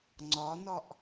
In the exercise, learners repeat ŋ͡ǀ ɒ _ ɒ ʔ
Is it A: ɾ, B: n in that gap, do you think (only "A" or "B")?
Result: B